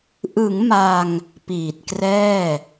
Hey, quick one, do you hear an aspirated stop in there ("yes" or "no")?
no